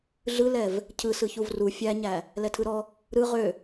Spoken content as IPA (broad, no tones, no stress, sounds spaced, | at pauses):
ɮ ɯ l ɛ v | cʰ ɯ s ɯ ç u v r u fʲ æ ɲ æ | l ɛ tʰ ɯ ɾ ɔ | ɾ ɯ ʁ ø